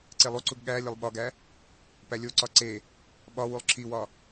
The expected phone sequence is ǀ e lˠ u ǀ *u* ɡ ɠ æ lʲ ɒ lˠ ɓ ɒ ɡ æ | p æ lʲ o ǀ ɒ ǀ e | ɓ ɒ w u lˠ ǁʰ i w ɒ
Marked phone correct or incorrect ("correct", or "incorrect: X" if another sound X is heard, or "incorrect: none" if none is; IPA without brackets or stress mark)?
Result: correct